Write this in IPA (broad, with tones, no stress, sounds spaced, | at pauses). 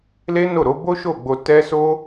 l e˦ n o˦˨ ɾ o˨˦ b o˦ ʃ o˦˨ ɡ͡b o˧ t ɛ˦ s o˦